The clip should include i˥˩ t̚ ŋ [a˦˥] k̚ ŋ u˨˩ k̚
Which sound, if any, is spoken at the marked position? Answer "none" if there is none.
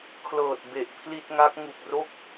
a˦˥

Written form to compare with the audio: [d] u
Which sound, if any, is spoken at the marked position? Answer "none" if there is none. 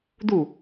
d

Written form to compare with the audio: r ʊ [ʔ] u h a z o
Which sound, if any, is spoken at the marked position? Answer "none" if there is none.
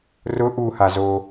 ʔ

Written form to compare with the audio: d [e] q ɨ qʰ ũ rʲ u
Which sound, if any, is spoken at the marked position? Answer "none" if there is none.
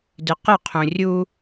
ɨ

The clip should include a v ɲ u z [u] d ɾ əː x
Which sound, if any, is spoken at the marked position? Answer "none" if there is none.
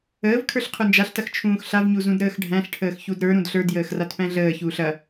ũ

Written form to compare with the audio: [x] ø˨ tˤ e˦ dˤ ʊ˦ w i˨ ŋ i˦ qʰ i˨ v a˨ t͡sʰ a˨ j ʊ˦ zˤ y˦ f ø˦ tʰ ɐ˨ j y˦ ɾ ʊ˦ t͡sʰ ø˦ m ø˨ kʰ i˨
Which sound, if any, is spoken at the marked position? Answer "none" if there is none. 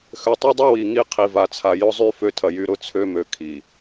x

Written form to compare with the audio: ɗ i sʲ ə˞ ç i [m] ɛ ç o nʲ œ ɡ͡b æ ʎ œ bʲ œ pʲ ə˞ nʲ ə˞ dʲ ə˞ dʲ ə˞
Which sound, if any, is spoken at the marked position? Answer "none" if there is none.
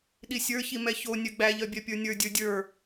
m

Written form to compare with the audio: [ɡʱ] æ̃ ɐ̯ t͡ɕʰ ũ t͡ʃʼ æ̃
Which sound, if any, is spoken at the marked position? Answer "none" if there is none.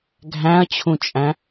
ɡʱ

